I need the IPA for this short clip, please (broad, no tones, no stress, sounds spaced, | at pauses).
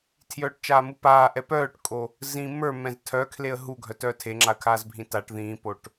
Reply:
tʰ j œː ʈ t͡ʃ aː m u p aː ʔ ɛ p œː ʈ kʼ o | z ĩ m ə˞ m ɛ̃ z tʰ œ kʰ l e ə̯ ɦ u ɡʱ œ t œː tʰ e ŋ͡ǁ a ə̯ kʰ aː z bʱ ĩ t a ʈ ð ĩː p o ʈ